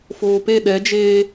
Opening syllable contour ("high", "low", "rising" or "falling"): low